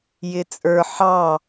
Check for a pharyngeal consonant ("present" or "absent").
present